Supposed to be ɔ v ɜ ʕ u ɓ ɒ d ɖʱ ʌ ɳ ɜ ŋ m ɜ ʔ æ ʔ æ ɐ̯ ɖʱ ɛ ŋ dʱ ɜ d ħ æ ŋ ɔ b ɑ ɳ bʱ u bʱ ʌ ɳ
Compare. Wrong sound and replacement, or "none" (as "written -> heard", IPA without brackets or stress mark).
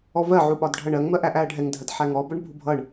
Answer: ɑ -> ʌ